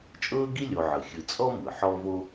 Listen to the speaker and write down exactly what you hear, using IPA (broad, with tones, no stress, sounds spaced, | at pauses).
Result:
t͡ʃʼ ɤː˥ ɡ i˥ lʲ o˨ ʕ ɯ˩ xʲ ɯ˨ t͡sʼ ɔ˦ m ɯ˩ ħ ɔ˦ v o˦